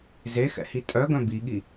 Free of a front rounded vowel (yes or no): no